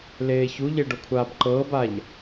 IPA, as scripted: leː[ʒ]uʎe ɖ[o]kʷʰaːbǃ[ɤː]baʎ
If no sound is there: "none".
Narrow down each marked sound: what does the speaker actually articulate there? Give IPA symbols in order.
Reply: ç, o, ɤː

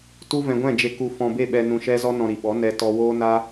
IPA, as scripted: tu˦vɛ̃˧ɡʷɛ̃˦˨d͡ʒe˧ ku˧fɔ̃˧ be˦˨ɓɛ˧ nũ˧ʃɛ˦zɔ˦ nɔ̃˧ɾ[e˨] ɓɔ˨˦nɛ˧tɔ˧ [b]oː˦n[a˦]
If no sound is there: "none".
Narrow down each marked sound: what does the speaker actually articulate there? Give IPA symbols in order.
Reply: i˨, w, a˦

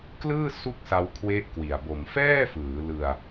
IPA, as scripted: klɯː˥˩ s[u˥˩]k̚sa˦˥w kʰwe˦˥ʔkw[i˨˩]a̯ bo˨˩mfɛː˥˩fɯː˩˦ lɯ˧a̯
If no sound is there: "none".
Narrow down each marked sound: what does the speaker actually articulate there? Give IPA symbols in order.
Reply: u˥˩, i˨˩

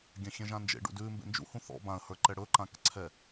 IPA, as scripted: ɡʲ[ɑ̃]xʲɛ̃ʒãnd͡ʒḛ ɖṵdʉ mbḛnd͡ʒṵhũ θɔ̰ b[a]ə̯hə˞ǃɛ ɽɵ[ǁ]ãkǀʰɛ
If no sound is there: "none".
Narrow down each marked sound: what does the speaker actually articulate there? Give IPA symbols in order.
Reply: ã, ã, ǃ

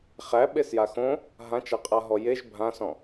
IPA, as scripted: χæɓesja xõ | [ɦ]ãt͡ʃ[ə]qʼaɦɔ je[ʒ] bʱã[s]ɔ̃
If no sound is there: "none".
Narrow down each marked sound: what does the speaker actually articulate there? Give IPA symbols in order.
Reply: ɦ, a, ʒ, s

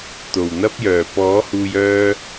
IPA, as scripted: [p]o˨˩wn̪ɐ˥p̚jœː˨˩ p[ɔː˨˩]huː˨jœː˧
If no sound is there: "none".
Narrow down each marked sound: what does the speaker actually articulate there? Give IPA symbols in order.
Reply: t̪, ɔː˨˥

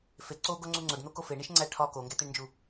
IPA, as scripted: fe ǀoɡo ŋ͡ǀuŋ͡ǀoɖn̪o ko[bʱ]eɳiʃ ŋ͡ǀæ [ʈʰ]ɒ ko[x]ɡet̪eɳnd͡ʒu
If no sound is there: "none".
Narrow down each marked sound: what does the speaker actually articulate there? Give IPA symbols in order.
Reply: f, ʈʰ, ŋ

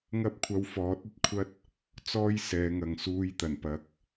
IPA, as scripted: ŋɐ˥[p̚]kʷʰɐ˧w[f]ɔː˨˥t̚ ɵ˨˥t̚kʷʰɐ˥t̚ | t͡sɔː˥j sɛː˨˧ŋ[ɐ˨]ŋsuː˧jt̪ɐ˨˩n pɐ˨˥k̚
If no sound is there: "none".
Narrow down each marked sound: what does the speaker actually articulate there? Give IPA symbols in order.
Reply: p̚, f, ɐ˨

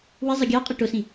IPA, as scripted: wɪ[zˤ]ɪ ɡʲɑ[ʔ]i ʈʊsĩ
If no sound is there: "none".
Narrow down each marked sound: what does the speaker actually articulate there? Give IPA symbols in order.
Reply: zˤ, qʼ

